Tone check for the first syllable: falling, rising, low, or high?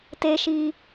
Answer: high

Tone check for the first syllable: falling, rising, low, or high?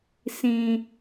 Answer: low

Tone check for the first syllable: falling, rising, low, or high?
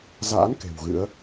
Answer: rising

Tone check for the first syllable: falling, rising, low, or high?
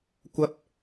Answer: high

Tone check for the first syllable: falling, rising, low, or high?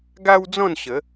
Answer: high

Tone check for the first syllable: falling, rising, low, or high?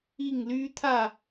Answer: falling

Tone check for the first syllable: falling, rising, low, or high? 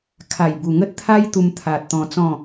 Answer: low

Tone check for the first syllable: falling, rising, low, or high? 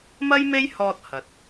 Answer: high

